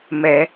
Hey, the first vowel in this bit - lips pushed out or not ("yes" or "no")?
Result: no